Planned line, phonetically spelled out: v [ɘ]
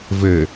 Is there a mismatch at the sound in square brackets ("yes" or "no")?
no